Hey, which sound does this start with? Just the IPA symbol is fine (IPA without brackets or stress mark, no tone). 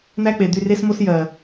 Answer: n̪